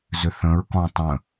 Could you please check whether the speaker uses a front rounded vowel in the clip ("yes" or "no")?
yes